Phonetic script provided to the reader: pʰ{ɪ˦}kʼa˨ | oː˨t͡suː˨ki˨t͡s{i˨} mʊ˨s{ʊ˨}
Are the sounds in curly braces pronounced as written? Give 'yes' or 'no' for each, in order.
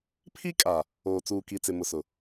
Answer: no, no, yes

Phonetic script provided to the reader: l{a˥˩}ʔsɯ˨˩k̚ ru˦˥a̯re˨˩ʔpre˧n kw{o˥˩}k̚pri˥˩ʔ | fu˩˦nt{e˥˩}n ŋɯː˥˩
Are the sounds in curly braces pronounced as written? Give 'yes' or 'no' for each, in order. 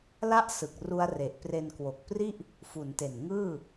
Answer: yes, no, no

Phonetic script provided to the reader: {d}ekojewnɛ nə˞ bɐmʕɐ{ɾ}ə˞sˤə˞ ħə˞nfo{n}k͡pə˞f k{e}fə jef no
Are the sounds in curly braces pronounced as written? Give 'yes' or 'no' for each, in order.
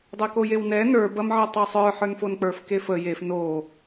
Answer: no, no, yes, yes

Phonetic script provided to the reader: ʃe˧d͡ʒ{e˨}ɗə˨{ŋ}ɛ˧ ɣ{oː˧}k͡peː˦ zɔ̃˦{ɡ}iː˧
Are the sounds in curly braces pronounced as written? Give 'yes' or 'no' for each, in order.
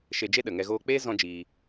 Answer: no, yes, yes, no

